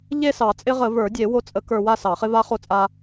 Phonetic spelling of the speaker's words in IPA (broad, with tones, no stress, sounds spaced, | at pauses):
ʎ e˥˧ s ɑ˨˩˦ t͡sʼ ɪ˦˥ ʁ ə˨˩˦ v ə˞˨˩˦ dʲ e˨˩˦ w o˧ t͡sʼ ə˨˩˦ k ə˞˧ w a˥˧ s ɑ˨˩˦ χ ɪ˦˥ v a˦˥ χ o˧ t͡sʼ a˧